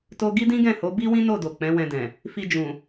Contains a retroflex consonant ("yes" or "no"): no